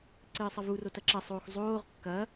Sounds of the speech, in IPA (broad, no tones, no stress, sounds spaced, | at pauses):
ǀ ɘː sˤ ɐ v u r o t ɐ ǁ ɐ sˤ oː x zˤ oː ʁ kː ɐː